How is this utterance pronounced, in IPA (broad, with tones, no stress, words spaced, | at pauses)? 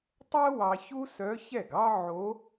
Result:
tˤɛ˥ wɑ˧çu˥ sœ˧˥çɛ˥˩ɡɑ˥ ʕo˧˥